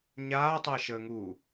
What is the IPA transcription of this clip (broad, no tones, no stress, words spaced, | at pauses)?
ɲaːtˤəːʃəːŋuː